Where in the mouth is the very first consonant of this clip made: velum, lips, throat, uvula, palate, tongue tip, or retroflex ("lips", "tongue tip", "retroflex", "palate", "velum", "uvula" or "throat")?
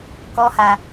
velum